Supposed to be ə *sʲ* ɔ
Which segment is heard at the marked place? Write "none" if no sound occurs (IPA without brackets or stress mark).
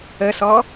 s